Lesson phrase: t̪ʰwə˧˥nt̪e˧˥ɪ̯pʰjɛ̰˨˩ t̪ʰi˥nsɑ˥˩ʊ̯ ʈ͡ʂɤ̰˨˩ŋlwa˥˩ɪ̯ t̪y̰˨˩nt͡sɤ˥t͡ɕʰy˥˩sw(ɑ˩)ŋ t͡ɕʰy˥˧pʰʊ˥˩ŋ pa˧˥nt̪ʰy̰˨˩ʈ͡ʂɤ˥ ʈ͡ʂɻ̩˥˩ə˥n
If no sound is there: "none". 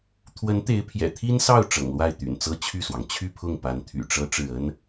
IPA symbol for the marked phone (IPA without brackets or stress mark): ɑ˩